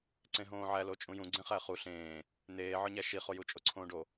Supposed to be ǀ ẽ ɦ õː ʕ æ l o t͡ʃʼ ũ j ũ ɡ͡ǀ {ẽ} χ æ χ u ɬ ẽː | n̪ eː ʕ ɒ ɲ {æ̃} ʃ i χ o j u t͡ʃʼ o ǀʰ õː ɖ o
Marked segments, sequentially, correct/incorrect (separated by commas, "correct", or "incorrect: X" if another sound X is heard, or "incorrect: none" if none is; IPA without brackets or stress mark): correct, incorrect: æ